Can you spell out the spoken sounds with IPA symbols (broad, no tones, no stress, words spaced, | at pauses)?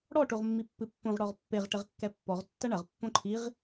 ɽɔ ʈoʁmːipːɨpːõʁ ɽɔʁpːeʁ ʈɘʁkːɛpːɔʁ tːɐɳɐʁ pːõǃʰiʁ